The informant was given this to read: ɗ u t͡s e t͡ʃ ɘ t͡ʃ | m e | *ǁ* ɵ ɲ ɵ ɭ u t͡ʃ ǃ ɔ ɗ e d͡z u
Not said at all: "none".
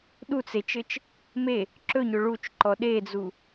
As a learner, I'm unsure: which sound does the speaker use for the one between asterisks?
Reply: ǁ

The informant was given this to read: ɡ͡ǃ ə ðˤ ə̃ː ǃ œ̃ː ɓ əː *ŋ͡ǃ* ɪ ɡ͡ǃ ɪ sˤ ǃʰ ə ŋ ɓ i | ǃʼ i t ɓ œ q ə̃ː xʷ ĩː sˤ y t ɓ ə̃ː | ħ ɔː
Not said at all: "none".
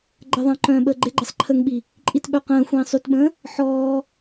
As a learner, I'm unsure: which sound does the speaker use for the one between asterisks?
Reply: ɡ͡ǃ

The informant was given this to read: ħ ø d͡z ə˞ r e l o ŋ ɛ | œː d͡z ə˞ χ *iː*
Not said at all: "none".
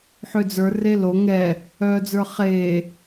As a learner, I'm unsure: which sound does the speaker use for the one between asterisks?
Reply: eː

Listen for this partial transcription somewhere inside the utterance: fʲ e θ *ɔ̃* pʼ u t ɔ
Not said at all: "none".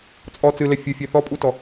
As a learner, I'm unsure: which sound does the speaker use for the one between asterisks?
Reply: ɔ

